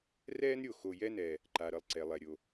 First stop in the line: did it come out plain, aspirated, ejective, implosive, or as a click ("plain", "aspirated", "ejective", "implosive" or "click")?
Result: click